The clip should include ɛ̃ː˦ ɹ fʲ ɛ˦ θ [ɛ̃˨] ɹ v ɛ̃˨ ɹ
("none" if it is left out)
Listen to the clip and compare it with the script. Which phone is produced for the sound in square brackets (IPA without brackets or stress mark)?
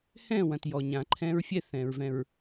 ɛ̃˨